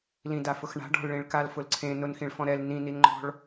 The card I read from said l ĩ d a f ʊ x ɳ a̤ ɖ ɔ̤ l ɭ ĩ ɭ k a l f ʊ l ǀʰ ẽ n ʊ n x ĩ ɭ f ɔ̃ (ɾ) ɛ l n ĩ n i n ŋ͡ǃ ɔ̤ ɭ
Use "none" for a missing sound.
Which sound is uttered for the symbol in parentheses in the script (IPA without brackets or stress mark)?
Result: ɾ